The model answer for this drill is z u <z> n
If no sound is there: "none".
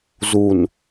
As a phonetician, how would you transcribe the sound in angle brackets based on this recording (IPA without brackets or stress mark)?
none